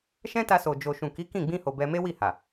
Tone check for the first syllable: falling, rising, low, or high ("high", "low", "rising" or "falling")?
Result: high